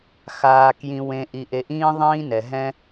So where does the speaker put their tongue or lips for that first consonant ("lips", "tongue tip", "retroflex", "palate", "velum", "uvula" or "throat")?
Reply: velum